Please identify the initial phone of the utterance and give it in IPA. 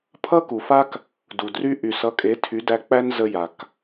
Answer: pʰ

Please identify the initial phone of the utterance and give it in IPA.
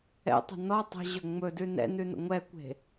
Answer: ɛ̰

